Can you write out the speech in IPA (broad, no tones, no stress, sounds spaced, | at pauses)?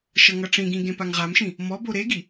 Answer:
ʃ ʌ ŋ ʌ ʈ͡ʂ ĩ ɡ ĩ ɡ ẽ p a ŋ ʁ a m ʃ ĩ | m ɔ b o ɾ e ɡ i